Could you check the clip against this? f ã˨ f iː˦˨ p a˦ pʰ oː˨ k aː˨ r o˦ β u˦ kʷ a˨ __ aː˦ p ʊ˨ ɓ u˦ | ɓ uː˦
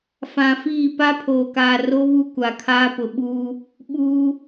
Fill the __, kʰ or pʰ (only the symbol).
kʰ